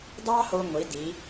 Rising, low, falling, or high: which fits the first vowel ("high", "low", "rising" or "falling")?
high